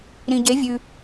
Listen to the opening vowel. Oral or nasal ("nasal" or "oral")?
nasal